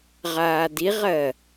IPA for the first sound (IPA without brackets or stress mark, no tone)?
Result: ʁ